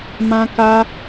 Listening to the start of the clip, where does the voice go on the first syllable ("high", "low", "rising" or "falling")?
high